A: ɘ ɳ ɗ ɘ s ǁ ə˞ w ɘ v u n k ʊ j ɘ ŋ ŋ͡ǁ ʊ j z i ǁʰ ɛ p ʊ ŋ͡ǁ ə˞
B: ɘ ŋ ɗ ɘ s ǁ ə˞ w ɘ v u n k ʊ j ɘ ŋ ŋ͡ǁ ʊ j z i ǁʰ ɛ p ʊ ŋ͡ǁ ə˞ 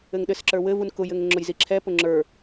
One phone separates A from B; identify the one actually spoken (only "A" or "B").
B